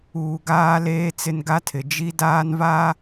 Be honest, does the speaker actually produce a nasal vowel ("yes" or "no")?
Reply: no